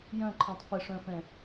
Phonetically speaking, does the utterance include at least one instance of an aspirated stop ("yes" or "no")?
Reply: yes